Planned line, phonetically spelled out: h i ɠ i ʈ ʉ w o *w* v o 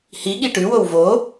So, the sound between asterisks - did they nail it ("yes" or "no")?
yes